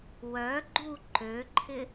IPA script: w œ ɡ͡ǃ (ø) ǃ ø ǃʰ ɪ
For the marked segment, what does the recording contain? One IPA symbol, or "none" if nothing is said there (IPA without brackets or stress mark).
u